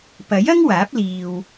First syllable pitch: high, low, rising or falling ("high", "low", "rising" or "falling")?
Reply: rising